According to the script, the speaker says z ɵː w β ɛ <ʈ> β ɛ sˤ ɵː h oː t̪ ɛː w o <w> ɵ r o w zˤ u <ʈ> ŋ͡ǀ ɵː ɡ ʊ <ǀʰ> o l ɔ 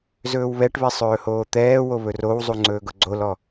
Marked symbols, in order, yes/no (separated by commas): yes, no, no, no